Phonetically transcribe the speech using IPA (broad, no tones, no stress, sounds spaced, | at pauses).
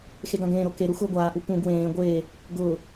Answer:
x e ɡ ã ɡ ẽː ɾ o k e ɾ u x ʊː ɡʷ aː ʔ u p ũ ɡ w ẽː ɡʷ eː | ɡ ʊː